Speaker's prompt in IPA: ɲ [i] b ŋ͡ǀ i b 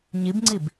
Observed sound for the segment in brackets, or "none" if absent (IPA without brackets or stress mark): i